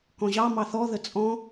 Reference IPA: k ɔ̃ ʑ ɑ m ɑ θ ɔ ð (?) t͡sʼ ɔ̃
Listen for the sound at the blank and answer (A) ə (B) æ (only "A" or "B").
A